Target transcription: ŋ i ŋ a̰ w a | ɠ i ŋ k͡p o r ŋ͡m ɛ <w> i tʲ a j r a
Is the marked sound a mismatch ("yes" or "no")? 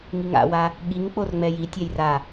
yes